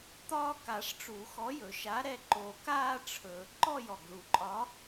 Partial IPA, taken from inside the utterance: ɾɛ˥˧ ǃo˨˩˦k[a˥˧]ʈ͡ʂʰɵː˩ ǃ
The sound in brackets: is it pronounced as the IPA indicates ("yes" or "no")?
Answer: no